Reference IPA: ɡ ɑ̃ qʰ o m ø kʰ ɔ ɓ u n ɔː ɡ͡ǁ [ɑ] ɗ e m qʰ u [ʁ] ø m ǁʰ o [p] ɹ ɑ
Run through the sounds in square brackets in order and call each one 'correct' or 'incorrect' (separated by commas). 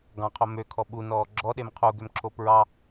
incorrect, incorrect, correct